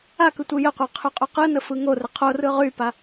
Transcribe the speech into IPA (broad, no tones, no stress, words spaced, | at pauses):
akɯ tʷɯjəqʷa qʰyqʼyqɯnə fɯŋorə qʰorɯ ʁypa